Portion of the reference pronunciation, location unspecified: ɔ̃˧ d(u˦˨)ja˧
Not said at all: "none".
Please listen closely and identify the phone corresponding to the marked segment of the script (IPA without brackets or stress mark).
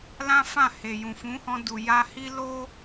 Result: u˨